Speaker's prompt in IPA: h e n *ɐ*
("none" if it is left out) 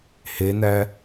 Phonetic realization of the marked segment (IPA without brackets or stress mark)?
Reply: æ